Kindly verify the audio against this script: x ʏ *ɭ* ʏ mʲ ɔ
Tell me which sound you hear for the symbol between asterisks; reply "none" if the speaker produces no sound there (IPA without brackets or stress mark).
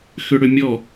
ɽ